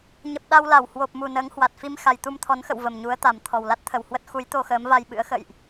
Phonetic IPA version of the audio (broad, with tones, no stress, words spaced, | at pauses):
ɲə˨˩p̚ ɗa˧wla˧˩w hwo˨˩p̚mu˨˩ nəː˨˦ŋhwa˨˩t̚fi˧m xa˨˩jt̪u˧mt̪ʰɔ˨˦nxə̰˧˨w və˨˩mɲu˨˦ə̯t̪a˨˩m t̪ʰɔ˨˩wla˦˥t̚t̪ʰə˨˩whwə˦˥t̚ xu˨˦j t̪o˧xəː˨˦mva˧jɓɨ̰˧˥ə̯ xə̰˧˨jʔ